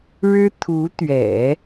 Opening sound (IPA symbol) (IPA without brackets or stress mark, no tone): ɻ